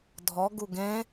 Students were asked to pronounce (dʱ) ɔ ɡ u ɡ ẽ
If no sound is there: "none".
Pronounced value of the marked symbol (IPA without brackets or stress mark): dʱ